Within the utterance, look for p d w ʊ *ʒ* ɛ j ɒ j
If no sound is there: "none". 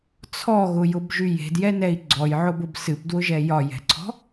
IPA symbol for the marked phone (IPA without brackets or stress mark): ʒ